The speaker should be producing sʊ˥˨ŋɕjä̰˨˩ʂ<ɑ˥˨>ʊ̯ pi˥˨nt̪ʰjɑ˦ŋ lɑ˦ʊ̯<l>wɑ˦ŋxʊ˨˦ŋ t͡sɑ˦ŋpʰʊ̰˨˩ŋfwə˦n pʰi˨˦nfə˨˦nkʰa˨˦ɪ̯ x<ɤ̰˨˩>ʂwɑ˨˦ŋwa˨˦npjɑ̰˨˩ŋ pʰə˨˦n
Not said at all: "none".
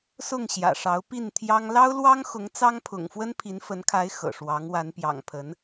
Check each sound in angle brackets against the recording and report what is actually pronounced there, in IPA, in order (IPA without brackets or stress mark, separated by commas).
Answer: ɑ˨˦, l, ɤ̰˨˩